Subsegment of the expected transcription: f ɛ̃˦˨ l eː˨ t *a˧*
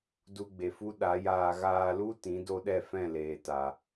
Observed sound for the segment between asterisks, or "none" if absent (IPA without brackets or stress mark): a˨